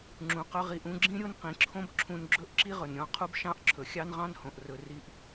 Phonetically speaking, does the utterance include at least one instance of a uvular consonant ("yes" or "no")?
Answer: yes